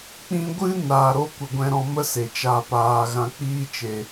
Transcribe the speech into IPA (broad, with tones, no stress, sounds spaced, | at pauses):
k͡p ĩ˧ ɡʷ ɨ˦ n aː˨ ɾ o˦ kʷ ə˧ ɡʷ ɛ̃˧ ɾ ɔ̃˧ m ə˦ s e˨ t͡ʃ a˧ p aː˧ ɣ ã˧ k͡p iː˦ t͡ʃ e˧